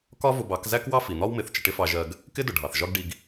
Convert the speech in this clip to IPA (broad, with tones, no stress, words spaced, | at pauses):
kɒ˦ vʊ˧bɑ˨˦k zæ˦kwɑ˦ fi˨n̪ɒ˦wmɪ˨˦θ t͡ʃə˧ʈɪ˦fɑ˧ʒɜ˧ɡ | kɪ˦dʊ˨ɖʱɑ˨θ ʒɒ˦ɡɖi˧ɡ